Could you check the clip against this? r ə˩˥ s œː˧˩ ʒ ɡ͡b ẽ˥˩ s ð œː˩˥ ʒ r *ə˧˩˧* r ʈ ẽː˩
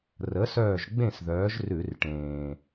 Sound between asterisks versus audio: incorrect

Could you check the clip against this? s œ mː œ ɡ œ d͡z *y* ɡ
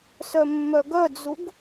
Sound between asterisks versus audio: incorrect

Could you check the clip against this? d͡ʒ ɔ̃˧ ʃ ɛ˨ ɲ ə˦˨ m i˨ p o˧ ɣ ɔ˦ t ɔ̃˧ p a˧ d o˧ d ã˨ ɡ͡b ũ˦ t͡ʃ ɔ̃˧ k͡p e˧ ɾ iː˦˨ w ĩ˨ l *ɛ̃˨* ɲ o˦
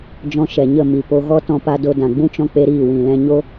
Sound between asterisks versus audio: incorrect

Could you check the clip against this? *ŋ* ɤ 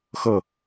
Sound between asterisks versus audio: incorrect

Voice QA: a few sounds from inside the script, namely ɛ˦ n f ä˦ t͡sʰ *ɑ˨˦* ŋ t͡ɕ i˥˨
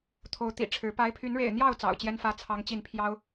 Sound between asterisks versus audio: incorrect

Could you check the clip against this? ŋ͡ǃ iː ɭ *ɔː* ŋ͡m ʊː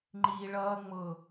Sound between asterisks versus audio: incorrect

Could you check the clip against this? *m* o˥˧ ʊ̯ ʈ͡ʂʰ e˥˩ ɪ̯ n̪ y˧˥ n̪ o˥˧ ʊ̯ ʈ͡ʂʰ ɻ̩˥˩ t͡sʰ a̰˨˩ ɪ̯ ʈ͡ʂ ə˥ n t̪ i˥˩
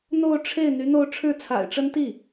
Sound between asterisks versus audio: incorrect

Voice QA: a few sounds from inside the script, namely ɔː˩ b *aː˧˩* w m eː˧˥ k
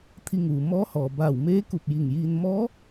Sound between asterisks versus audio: correct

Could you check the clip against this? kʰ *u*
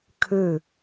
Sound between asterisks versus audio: incorrect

